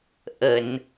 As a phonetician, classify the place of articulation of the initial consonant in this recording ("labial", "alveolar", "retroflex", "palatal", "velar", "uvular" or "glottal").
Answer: glottal